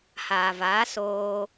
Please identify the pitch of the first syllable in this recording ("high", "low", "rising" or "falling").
low